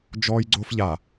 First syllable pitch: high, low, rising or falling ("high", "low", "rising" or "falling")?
high